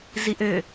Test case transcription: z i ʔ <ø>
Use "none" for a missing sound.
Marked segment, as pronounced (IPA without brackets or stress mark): ø